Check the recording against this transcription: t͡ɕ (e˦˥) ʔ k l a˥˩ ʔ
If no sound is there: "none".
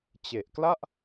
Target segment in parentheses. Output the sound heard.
e˨˩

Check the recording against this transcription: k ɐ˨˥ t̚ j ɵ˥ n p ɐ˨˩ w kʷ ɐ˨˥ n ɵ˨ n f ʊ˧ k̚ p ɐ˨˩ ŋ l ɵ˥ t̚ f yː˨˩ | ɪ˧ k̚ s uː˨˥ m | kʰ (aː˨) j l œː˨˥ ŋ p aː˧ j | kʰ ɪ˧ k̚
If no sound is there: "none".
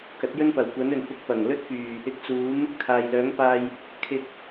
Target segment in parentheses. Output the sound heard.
aː˨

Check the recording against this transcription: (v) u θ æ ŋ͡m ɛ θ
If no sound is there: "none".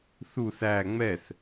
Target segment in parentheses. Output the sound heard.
θ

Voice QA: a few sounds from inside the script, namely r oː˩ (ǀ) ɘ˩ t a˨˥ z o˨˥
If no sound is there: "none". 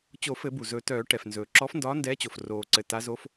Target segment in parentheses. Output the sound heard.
ǀ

